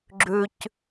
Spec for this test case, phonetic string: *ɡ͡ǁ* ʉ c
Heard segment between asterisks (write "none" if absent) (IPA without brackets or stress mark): ɡ͡ǁ